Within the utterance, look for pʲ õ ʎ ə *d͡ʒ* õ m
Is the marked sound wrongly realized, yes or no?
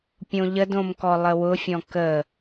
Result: yes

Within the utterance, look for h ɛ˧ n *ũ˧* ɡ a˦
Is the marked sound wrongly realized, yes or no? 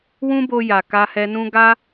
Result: yes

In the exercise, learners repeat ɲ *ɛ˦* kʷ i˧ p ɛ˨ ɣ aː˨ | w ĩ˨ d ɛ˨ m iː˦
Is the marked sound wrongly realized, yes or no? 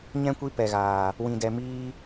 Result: yes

